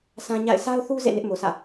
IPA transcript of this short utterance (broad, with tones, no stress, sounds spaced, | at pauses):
sʰ ã˦ ɲ a̰˦˨ ɪ̯ s a˦ ʊ̯ θ u˦ z ḛ˦˨ n ɪ˦ ʔ m o˨ s ä̰˦˨